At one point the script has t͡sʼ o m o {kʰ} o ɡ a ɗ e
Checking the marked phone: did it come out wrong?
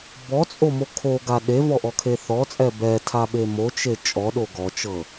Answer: no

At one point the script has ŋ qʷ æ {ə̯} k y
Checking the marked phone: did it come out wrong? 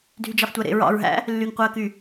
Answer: no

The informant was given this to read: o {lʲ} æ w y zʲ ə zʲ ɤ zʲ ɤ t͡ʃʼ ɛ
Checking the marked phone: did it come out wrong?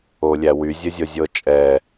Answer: no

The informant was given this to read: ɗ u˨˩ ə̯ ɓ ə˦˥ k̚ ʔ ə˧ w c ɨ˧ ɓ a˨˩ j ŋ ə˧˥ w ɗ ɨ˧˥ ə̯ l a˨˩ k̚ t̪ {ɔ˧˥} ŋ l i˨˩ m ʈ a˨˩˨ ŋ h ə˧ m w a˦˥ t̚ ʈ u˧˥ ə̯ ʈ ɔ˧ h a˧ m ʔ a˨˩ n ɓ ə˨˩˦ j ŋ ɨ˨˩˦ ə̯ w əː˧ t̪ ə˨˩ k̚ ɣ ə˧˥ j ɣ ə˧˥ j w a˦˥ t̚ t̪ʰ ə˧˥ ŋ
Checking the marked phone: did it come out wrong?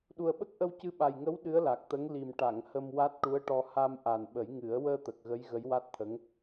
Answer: yes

